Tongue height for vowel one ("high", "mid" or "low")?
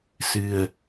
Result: high